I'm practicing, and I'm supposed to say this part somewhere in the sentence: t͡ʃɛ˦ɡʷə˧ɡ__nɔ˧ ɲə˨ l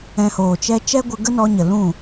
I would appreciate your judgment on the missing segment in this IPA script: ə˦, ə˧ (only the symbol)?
ə˦